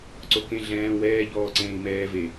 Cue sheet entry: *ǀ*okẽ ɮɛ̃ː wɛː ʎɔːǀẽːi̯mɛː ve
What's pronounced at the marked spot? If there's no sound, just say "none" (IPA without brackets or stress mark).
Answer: ǀ